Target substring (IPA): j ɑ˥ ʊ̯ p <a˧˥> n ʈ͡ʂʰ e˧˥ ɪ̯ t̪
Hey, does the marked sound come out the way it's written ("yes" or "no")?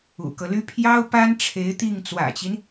no